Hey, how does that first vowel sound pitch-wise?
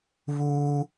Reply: high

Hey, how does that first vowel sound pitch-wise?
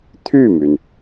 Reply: falling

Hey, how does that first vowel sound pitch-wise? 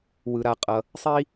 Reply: low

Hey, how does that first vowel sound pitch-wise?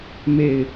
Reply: falling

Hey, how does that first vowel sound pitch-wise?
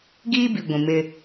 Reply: high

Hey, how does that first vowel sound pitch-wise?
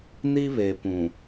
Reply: high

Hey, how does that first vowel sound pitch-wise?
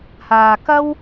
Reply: low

